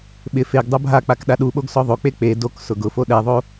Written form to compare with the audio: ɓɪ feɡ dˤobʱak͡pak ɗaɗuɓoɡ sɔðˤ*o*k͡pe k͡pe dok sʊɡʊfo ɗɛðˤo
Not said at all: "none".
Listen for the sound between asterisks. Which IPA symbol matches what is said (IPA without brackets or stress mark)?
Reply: o